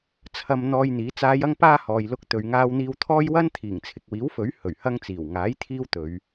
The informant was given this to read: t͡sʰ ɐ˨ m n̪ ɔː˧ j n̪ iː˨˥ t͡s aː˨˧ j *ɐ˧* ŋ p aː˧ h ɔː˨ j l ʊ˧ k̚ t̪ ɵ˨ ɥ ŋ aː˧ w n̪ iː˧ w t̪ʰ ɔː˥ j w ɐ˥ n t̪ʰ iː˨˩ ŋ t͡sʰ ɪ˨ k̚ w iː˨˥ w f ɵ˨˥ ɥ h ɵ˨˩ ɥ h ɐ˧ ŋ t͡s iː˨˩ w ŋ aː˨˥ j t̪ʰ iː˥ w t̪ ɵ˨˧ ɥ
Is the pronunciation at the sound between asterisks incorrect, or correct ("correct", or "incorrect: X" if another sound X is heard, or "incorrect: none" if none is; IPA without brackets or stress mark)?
correct